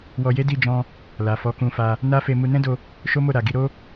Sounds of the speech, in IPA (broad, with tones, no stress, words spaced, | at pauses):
wɔ˧je˦di˦˨ d͡ʒɔ̃˧ | la˨fɔ˨˦kũ˧fa˧ | na˦fe˧ mu˧nɛ̃˦do˧ | ʃo˦mo˦˨ ɾa˨ ɡi˧ɾo˦